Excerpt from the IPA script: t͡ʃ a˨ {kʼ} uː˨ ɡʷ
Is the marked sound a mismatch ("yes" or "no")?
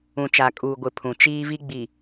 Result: no